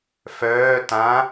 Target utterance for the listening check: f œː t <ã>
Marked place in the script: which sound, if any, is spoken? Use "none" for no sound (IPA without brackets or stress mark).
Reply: ã